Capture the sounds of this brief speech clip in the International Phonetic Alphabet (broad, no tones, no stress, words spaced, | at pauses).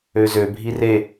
øzø bʱire